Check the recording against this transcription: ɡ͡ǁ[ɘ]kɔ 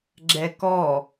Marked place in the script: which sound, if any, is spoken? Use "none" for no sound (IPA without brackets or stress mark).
ɛ